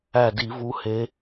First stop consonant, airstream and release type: plain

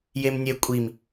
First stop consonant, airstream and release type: ejective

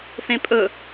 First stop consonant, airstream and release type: ejective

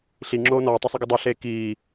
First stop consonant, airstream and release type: click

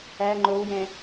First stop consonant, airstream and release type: click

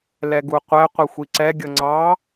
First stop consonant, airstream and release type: plain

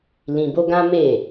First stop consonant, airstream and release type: plain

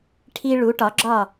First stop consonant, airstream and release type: aspirated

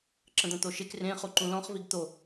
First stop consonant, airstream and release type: click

